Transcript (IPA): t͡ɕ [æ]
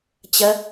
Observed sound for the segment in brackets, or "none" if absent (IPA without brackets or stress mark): ɐ